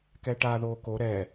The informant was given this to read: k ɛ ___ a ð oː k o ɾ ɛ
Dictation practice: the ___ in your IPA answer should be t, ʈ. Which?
ʈ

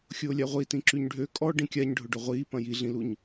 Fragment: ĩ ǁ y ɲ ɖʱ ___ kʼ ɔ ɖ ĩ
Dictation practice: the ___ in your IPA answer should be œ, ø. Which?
ø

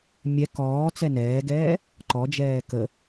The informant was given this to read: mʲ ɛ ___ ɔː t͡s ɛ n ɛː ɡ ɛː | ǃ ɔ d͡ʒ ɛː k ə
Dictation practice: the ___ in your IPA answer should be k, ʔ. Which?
k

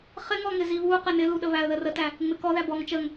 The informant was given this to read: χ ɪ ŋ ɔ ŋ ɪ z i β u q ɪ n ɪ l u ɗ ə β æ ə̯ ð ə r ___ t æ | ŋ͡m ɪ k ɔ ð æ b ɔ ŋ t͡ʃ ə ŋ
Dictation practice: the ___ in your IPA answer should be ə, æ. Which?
ə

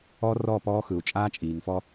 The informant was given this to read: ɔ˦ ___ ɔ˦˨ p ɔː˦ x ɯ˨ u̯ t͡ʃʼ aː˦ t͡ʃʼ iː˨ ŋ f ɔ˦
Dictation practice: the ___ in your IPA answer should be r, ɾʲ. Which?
r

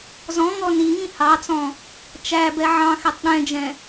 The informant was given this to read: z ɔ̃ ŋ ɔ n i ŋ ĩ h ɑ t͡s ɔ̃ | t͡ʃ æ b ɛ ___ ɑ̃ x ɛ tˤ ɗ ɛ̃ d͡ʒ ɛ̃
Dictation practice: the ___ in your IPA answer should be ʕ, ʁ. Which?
ʕ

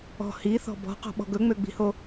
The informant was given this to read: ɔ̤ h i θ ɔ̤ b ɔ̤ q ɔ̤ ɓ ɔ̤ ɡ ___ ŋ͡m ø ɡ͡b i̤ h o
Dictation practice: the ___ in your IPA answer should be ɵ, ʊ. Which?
ɵ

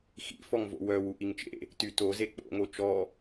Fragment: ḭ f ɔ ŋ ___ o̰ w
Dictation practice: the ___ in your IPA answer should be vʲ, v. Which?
v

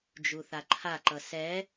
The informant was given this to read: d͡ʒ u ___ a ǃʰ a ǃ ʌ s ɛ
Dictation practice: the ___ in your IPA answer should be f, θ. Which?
θ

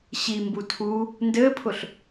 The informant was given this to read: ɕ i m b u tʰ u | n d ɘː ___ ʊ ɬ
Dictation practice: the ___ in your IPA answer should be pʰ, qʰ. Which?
pʰ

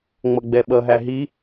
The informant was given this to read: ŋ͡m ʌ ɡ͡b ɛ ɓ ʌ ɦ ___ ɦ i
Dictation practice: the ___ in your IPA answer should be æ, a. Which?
æ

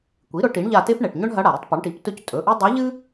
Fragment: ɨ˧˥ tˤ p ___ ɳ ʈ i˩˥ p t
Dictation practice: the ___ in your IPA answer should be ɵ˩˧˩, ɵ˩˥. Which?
ɵ˩˥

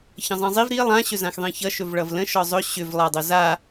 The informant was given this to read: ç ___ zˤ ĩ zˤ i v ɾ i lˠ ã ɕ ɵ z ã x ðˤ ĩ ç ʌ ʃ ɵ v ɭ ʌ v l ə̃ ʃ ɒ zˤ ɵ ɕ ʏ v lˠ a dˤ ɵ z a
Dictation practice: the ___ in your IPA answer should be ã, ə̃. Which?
ə̃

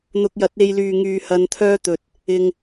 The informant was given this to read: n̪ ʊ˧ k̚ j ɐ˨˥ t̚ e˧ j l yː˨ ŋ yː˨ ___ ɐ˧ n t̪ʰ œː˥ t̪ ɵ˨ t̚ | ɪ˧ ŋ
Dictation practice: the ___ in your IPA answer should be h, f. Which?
h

